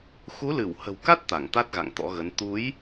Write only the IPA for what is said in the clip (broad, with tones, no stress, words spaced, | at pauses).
xu˨˦lɨ˧˩whə̤˨˩wka˦˥t̚ t̪a˧˩ŋt̪a˦˥t̚ɣa̰˧˨ŋ t̪ɔ̰˧˥ɣə˨˦n t̪u˨˦j